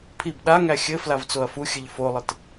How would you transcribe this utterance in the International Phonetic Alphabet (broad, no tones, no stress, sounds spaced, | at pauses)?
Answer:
pʰ i b ɗ a ŋ æ xʲ ɘ f l a v t͡s o ɐ̯ f u xʲ ɘ ʎ f o lˠ ɘ t